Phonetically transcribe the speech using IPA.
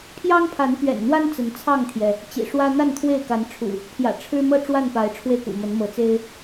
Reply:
pʰ j ɑ˦ ŋ pʰ a˨˦ n p ɥ ɛ̰˨˩ n n̪ w a˦ n t͡s ə˨˦ n t͡sʰ ɑ˥˨ ŋ t̪ʰ j ɛ˩ | t͡ɕ ḭ˨˩ ʂ w ä˦ n̪ a˥˨ n t̪ʰ w e˥˨ ɪ̯ k a˨˦ n ʈ͡ʂʰ ṵ˨˩ | pʰ j ä̰˨˩ ʈ͡ʂʰ ɻ̩˦ m ɤ˥˨ ʈ͡ʂ w a˥˨ n p a˨˦ ɪ̯ ʈ͡ʂʰ w e˧ ɪ̯ k ṵ˨˩ m ə˨˦ n m ɤ˨˦ t͡s e˦ ɪ̯

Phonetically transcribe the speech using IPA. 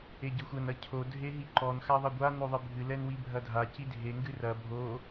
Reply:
e ɟ ɘ xʷ ɐ n ɐ cʰ o dʱ e ɦ i ǃ ɔ n x a ðˤ ɐ ɡʷ a n o ðˤ ɨ bʱ ɨ l ɛ n w i bʱ ɐ dʱ a c i dʱ e ŋ ɡ ɨ r ɐ bʱ o

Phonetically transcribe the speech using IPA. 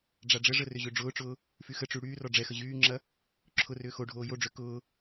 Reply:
ɖ͡ʐ a ɖ͡ʐ ə ʐ ə r ʏ ʑ ø ɖ͡ʐ ʊː ʈ͡ʂ ʊː | f y x ə ʈ͡ʂ y ɽ yː r ɔ ɖ͡ʐ ɛ x ə ʑ yː ŋ͡ǁ ɐ | ǁʰ ʊ r ʏː x o ɖʱ oː j o ɖ͡ʐ ø k ʊː

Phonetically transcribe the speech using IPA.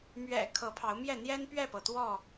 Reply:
m ɥ ɛ̰˨˩ kʰ ɤ˨˦ pʰ ɑ˨˦ ʊ̯ m j ɛ˥˨ n̪ j ɛ˦ n p ɥ ɛ˥˨ p ɤ˩ t̪ w ɔ˥˨

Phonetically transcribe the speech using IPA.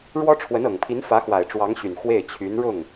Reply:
ɻ w ɔ˥ ʈ͡ʂʰ w ə˧˥ n ɤ˨˩ ŋ pʰ i˧˥ n f ä˧˥ x w a˨˩ ɪ̯ ʈ͡ʂ w ɑ˧˥ ŋ ɕ y˨˩ n x w e˥˩ ɪ̯ t͡ɕʰ y˧˥ n ɻ ʊ˥˩ ŋ

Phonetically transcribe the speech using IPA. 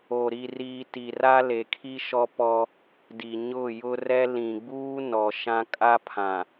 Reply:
o˨ ɾ i˨ r iː˨ t i˨ r a˦ l e˨ kʰ i˦ ʃ ɔ˦ p ɔ˦ | d i˨ ɲ ʊ˦˨ j ʊ˦ r ɛ˦ l ĩ˨ ɡ͡b uː˦ n ɔ˨ ʃ ã˦ kʼ a˦ pʰ ã˨

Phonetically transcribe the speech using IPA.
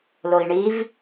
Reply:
l o i̯ ɳ i v

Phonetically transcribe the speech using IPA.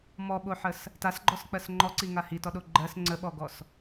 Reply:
m ɔ ɓ o ħ ə s | t a s ɡ͡ǃ ɔ s k͡p ɜ s ŋ͡ǃ ɔ ǀ i ŋ a h i t ɔ ɗ o ɡ͡ǃ ɜ s ŋ͡ǀ ə ɓ ɔ ɡ ɔ s

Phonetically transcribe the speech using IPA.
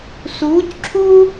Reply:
s uː˧˥ c ǁʰ u˥

